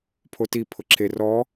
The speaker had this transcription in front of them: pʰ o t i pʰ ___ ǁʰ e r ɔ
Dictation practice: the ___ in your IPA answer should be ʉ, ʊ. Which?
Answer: ʊ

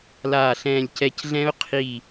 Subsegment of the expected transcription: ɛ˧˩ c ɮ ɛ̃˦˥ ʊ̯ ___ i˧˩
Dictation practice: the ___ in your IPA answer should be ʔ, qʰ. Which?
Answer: qʰ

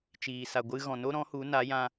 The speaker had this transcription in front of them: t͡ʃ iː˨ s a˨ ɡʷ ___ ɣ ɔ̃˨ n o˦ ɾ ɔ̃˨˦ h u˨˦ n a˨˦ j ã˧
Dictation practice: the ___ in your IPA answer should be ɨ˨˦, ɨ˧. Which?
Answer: ɨ˧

